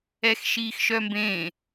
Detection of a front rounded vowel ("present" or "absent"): present